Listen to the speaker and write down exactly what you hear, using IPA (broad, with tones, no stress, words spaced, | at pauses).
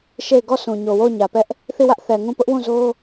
ʃe˦˨ɪ̯ ɡɔ˦˨sʰũ˨ɲo˨ wo˦˨ʊ̯ɲä˨pɛ˦ʔ | θi˦˨wä˦ʔ θɛ˨ŋũ˦˨ pʊ˦ʔwũ˦˨zo˦